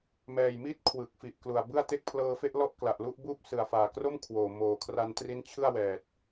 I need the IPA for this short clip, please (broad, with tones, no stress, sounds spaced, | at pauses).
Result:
m ɛː˨˩ j m i˥˩ t̚ kʰ w ɯ˨˩ k̚ f i˨˩ ʔ k l u˨˩ a̯ b ɯ˥˩ a̯ t e˥˩ k̚ pʰ l ɤː˧ f e˥˩ ʔ l ɔ˥˩ ʔ k l a˨˩ ʔ l u˥˩ ʔ b uː˥˩ p̚ s ɯ˨˩ a̯ f aː˨˩ k r o˥˩ m kʰ w oː˨˩ m oː˨˩ kʰ r a˧ n t r i˦˥ n t͡ɕʰ ɯ˥˩ a̯ w ɛː˨˩ t̚